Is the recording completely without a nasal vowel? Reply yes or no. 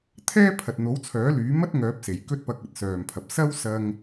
yes